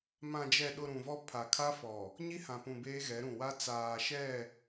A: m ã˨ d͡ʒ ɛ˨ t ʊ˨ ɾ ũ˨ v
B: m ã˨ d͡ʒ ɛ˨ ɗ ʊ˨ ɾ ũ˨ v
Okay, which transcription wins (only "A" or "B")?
B